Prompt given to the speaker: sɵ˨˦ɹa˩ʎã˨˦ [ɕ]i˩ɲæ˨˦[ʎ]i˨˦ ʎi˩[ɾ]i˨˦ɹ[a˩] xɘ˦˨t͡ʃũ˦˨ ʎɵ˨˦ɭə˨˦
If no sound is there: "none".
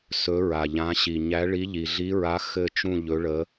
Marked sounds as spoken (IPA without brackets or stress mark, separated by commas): ɕ, ɭ, ɮ, a˨˦